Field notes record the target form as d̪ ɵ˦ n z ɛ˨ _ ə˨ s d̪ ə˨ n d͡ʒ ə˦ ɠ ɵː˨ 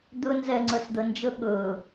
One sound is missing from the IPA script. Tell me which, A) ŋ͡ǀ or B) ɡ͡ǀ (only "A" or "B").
A